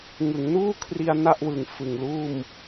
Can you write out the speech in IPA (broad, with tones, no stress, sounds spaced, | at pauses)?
ŋ ɯ˩˦ ŋ n uː˥˩ kʰ r i˧ a̯ n a˥˩ ʔ w ɯ˨˩ ŋ f ɯ˨˩ ŋ l uː˥˩ m